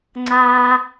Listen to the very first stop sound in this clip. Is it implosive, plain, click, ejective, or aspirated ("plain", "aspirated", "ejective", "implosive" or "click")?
click